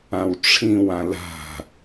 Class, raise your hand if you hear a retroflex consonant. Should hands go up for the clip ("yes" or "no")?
yes